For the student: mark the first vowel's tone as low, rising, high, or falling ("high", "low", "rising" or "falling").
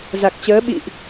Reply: low